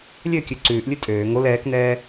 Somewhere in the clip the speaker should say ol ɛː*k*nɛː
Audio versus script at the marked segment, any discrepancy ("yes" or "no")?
no